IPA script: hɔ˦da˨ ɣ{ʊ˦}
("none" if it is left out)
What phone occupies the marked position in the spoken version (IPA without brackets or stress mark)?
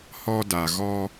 ɔ˦